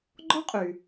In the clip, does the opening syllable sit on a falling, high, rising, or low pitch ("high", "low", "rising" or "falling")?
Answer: high